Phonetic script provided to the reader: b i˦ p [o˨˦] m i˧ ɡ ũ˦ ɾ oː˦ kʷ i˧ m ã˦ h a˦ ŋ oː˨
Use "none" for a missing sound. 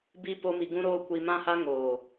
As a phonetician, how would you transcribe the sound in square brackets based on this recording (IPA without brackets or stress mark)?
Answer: o˦